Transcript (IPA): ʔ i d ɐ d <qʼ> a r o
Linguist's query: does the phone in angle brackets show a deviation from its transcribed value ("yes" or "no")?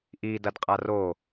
no